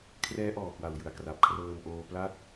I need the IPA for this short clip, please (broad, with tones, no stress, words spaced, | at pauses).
kʰrɛː˦˥ ʔɔː˨˩kwa˨˩w jɯ˨˩a̯kra˨˩p̚ kʰrɤː˧m ʔoː˧pla˥˩t̚